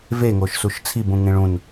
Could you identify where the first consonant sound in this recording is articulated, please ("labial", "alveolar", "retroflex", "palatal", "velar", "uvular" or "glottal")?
labial